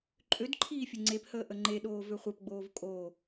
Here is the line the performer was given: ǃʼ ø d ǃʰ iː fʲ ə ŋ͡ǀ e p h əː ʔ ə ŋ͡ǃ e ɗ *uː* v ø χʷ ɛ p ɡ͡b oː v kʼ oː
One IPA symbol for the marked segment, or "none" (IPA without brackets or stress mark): oː